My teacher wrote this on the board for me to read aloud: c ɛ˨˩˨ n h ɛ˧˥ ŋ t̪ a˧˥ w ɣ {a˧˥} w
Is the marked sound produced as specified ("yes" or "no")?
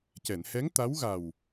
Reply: no